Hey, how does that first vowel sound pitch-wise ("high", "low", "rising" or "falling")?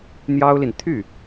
high